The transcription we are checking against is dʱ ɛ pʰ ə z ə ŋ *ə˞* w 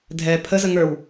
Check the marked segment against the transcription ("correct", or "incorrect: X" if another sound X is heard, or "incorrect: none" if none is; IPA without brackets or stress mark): correct